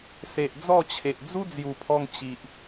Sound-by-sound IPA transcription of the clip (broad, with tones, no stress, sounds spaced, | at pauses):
s e˨ ʔ d͡z ɔ˥˧ t͡ɕʰ e˨ ʔ d͡z u˦ d͡z j u˨˩ pʰ ɔ˧ ŋ t͡ɕ i˨ ʔ